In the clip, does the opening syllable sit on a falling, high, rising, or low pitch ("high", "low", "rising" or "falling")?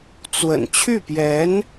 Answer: low